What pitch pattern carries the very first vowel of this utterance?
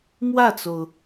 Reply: falling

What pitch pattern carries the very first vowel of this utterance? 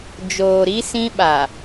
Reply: low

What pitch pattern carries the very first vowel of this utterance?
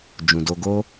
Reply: low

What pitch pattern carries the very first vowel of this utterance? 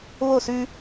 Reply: falling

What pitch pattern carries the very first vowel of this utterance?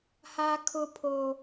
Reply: high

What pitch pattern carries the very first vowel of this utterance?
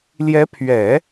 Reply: rising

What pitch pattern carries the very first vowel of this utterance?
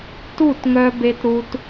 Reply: falling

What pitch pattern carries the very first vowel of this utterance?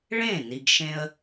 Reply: falling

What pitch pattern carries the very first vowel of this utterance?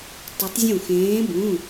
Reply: rising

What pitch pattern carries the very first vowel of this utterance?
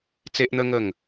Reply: high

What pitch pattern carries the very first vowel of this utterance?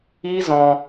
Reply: high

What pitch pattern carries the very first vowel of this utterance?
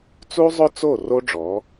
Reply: high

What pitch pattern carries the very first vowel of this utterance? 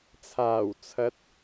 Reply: low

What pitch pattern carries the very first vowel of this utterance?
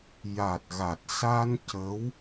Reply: low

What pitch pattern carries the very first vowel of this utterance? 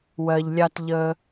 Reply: low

